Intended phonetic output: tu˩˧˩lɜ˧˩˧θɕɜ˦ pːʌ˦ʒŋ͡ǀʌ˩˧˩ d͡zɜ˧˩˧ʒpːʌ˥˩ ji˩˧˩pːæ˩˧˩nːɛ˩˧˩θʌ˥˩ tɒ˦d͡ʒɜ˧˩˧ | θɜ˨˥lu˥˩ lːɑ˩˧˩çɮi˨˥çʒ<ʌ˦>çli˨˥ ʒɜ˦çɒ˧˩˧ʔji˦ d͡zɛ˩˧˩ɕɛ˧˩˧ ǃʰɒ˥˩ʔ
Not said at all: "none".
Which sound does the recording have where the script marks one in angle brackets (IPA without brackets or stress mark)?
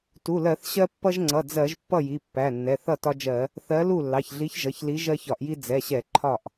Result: ʌ˩˧˩